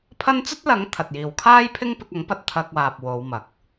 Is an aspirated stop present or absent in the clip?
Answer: present